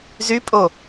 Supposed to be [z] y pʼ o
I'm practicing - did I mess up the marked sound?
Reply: no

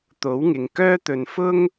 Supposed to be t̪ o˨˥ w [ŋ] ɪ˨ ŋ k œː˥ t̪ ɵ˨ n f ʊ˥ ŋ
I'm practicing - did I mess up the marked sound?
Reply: no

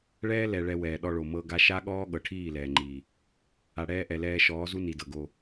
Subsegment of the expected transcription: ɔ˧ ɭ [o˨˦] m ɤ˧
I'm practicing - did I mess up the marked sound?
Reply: yes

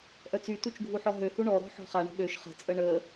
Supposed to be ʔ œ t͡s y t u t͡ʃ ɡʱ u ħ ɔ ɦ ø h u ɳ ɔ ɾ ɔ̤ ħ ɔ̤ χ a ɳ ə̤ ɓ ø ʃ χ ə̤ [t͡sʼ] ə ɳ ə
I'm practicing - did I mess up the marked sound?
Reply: no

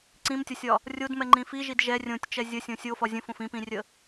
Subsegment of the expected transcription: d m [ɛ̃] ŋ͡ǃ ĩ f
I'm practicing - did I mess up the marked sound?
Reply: yes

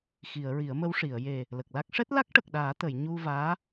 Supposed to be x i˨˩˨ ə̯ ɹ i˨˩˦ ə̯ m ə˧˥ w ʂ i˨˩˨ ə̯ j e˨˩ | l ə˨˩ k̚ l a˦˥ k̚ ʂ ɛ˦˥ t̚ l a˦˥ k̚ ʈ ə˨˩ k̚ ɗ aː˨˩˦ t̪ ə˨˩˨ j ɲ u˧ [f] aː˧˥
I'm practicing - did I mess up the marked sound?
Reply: yes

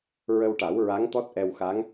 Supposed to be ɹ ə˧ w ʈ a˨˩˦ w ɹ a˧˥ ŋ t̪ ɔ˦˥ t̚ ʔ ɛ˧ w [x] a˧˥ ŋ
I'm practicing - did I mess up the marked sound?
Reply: no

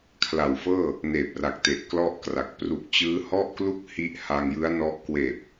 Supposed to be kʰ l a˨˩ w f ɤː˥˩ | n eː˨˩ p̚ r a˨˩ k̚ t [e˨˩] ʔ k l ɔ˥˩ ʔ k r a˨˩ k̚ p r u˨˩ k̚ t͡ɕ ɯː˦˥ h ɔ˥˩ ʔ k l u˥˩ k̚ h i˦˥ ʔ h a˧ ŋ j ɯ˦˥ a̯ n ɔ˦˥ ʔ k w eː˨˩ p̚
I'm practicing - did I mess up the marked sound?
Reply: no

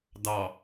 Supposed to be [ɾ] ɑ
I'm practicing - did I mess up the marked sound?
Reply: yes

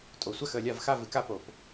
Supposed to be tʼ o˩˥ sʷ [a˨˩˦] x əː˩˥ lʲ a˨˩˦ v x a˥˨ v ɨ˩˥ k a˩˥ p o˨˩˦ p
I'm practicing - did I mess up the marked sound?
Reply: yes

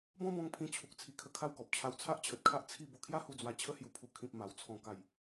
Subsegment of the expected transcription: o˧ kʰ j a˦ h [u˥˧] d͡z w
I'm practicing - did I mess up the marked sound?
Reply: yes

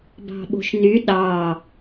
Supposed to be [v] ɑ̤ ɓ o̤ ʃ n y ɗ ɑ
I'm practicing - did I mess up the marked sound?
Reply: yes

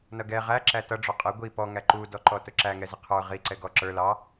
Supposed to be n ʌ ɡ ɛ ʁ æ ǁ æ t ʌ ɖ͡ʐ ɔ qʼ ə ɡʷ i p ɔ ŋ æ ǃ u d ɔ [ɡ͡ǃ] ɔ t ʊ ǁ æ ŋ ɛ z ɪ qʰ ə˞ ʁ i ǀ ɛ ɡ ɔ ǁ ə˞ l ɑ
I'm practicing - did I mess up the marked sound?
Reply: yes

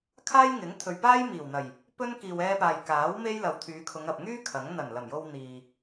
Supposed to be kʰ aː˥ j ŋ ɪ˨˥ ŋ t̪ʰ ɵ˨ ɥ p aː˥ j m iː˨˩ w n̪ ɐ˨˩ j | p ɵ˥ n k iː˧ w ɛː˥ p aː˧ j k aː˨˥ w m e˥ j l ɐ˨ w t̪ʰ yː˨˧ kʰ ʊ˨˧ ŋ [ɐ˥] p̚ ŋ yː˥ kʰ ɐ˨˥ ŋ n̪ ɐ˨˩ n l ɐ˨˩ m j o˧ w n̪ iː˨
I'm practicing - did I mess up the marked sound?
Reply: yes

